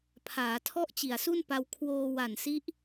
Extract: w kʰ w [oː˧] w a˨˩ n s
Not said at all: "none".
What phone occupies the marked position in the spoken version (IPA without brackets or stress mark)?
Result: oː˧